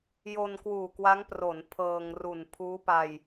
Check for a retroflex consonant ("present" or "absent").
absent